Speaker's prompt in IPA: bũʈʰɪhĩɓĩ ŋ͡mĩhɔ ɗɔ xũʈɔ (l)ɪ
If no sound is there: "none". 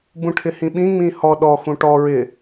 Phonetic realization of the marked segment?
ɹ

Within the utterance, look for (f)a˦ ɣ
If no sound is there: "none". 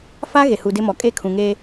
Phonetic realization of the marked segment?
f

